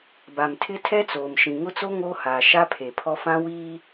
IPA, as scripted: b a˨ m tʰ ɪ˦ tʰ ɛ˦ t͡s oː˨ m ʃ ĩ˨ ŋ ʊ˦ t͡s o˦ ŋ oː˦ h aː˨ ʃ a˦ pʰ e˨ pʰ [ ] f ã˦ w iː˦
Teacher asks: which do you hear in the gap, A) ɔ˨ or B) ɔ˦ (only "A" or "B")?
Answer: B